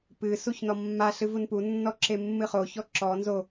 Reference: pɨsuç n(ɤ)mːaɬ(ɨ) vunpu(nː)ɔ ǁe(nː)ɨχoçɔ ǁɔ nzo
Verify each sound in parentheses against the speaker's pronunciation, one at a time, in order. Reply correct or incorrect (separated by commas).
incorrect, correct, correct, incorrect